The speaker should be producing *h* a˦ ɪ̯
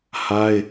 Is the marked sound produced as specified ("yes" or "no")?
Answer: yes